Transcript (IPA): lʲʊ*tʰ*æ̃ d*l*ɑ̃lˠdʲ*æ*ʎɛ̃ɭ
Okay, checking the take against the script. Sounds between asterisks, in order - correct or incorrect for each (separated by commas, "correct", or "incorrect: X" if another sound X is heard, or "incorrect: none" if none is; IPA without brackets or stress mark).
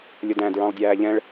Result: incorrect: d, incorrect: ɹ, incorrect: æː